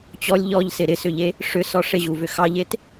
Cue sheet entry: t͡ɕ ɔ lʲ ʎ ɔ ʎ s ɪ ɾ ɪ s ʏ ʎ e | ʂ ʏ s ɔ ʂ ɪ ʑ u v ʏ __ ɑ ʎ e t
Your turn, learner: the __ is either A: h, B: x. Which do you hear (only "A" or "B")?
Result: B